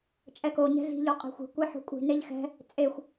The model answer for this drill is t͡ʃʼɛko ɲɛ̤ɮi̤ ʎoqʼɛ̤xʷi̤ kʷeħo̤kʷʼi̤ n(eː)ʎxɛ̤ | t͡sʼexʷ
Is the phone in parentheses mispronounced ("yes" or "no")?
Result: yes